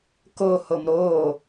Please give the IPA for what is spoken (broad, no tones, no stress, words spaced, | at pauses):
ko homɾoː